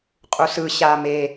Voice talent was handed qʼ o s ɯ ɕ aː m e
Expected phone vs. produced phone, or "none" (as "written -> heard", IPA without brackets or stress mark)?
o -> u